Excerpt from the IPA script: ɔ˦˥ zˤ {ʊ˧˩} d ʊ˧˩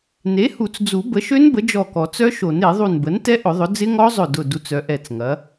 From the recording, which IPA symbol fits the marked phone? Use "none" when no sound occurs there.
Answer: ʊ˧˩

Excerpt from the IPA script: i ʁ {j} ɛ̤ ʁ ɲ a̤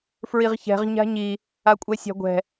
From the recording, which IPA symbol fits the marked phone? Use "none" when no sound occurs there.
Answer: ç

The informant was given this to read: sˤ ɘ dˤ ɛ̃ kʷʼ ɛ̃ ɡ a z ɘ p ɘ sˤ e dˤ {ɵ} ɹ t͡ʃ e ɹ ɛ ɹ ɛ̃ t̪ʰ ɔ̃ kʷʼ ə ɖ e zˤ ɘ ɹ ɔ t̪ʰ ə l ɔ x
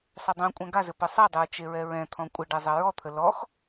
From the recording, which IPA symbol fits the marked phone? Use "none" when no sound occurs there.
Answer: ʊ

